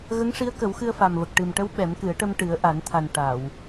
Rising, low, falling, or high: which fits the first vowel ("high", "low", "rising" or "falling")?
rising